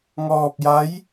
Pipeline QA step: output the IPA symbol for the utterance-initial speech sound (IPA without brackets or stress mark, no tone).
ŋ